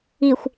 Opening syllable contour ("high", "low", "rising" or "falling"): low